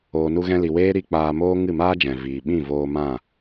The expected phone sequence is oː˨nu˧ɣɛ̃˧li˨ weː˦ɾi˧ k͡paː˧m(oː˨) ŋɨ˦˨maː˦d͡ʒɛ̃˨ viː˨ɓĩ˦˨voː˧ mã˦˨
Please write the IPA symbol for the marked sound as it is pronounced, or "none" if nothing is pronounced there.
oː˦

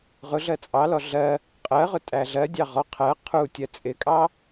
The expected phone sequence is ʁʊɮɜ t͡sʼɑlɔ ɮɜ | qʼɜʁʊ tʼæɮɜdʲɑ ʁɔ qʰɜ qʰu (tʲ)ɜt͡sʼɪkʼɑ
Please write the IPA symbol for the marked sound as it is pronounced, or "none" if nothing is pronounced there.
tʲ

